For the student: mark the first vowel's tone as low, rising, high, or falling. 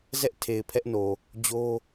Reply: high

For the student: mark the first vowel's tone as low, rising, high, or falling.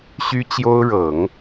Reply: high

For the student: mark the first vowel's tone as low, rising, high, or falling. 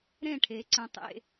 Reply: falling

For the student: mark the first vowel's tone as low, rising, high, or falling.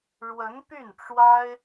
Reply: rising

